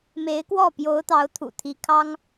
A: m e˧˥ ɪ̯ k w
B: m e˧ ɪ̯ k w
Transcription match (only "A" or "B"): A